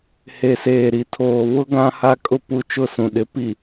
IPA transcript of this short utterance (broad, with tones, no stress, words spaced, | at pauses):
he˨seː˨ɾi˨tʰoː˨ βʊ˦ ɡã˦ha˦kʼʊ˦ pu˦t͡ʃʊ˦˨sũ˨ɗɪ˨˦ pi˨